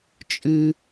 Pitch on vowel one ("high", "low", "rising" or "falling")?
high